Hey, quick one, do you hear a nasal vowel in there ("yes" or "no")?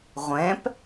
yes